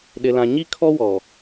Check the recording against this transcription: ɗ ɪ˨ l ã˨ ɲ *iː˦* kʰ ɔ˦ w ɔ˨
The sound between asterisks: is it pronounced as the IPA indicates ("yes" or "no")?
no